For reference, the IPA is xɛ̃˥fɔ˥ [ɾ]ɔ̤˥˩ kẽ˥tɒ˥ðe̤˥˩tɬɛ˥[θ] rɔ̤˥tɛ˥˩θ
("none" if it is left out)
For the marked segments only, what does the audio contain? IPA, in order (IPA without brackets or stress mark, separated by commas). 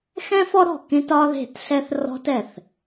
ɾ, θ